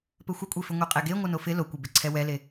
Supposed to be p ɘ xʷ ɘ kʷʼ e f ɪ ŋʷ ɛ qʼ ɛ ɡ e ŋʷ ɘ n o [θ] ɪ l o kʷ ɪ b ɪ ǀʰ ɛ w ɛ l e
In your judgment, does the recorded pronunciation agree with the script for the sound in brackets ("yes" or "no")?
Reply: no